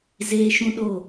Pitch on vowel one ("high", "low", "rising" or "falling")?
high